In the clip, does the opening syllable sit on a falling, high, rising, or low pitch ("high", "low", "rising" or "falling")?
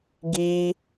high